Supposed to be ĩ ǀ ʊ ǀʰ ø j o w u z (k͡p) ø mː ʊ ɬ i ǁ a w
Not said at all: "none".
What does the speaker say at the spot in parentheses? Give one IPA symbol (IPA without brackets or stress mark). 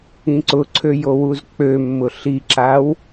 k͡p